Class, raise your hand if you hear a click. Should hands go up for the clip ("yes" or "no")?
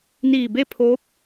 no